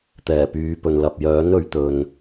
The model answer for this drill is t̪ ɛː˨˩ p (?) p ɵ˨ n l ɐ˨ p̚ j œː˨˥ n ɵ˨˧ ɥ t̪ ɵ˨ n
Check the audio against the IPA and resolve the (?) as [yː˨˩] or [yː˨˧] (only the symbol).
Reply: yː˨˧